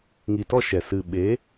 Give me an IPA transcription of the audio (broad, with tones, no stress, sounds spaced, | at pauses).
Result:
ŋ i˨ t ɔ˦˨ ʃ ɛ˨ s ɨ˨ ɓ e˨˦